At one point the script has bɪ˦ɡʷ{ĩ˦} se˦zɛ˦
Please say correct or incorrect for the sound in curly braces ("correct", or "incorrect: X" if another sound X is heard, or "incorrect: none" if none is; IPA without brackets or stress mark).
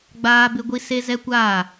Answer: incorrect: i˦